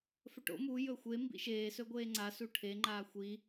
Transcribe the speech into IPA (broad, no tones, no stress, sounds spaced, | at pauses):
f ɵ ʈ o̰ m u j ɵ xʷ e m b ḭ ʃ eː s ɵ ɡʷ eː ŋ͡ǀ a s u ʈʰ e ŋ͡ǃ aː xʷ i